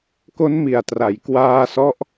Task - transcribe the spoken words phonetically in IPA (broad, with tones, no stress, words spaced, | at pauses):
ko˦˥nmi˨˩a̯tra˩˦j kwaː˧sɔ˦˥ʔ